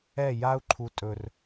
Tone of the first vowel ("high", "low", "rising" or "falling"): falling